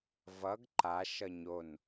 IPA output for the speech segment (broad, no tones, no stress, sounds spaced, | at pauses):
v ʌ ɡ ǃ a ʃ ʌ ɲ o n